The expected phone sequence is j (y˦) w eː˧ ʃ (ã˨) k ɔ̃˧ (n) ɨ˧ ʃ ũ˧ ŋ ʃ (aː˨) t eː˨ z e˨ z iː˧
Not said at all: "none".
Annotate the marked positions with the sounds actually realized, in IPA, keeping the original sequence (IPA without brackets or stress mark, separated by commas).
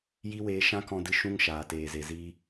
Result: i˦, ã˦, d, aː˨